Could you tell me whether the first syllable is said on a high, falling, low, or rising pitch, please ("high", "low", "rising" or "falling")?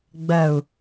low